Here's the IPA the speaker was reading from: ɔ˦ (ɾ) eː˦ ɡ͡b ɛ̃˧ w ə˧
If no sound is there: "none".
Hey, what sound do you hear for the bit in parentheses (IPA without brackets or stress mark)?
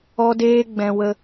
d